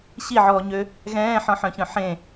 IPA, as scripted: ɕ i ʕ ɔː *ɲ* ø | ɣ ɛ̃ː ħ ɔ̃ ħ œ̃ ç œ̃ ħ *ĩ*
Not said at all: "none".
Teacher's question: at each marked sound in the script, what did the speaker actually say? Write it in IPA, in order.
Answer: ɲ, ẽ

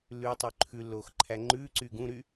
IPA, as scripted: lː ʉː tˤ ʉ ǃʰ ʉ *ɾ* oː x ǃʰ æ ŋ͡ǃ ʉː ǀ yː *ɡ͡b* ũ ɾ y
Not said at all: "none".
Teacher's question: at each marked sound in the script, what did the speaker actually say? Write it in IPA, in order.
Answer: lː, ɡ

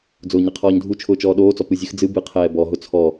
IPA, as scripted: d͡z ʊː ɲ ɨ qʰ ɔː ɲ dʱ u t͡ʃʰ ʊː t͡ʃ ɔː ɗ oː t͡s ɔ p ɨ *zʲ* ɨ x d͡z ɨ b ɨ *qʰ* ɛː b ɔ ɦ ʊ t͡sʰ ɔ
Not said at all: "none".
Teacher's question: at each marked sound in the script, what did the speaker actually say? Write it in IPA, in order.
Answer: zʲ, qʰ

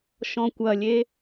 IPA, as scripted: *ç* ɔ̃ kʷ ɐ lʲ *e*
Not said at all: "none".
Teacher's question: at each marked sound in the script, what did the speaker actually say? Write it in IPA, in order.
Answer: ʃ, e

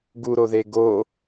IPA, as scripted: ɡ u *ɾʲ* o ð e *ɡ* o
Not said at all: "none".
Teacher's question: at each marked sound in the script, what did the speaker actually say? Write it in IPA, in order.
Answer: ɾ, ɡ

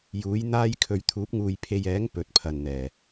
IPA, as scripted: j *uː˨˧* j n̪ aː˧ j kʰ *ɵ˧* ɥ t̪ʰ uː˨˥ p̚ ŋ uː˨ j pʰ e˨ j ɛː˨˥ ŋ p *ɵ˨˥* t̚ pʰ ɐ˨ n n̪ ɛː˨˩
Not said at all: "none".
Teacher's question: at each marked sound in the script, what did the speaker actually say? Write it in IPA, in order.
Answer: uː˨˥, ɵ˨, ɵ˨˥

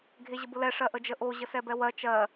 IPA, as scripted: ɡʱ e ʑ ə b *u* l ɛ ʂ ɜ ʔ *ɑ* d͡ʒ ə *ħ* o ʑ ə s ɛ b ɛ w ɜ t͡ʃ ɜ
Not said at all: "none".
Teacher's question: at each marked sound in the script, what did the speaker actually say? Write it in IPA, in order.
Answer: ʊ, ə, ʔ

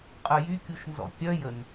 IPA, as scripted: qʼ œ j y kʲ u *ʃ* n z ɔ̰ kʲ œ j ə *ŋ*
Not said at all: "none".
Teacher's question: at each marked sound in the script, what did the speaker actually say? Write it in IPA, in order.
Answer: ʃ, n

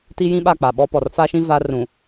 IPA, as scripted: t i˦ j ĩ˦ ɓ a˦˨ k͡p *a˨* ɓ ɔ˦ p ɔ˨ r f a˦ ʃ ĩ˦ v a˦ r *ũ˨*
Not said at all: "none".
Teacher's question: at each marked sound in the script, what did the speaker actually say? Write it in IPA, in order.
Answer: a˨, ũ˨

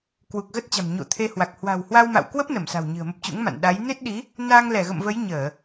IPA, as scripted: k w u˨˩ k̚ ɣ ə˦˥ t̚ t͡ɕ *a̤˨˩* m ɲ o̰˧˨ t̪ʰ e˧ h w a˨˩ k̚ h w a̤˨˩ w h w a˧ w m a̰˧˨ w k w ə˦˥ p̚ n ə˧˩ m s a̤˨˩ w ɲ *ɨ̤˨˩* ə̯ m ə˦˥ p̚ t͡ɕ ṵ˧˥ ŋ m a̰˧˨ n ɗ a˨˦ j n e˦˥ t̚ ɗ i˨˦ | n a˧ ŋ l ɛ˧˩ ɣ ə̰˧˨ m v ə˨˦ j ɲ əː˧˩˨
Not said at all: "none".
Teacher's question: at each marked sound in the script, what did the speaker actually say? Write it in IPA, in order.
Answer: a̤˨˩, ɨ̤˨˩

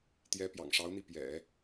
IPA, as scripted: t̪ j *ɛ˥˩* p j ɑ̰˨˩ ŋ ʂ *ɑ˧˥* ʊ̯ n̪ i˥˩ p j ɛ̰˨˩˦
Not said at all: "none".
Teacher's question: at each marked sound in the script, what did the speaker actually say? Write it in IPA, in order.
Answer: ɛ˧˥, ɑ˧˥

